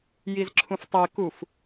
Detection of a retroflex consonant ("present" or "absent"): absent